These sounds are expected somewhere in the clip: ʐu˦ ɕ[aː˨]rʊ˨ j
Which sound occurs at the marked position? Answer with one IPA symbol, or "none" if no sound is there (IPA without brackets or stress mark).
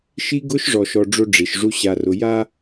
a˨